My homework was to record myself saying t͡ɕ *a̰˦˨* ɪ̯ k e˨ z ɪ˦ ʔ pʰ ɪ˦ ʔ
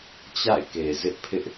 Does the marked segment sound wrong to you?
no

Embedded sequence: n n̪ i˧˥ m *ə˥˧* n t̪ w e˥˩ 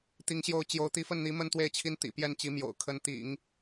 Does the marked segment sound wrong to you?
no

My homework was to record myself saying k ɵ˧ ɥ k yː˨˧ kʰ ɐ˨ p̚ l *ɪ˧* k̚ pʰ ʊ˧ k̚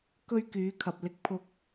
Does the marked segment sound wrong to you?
no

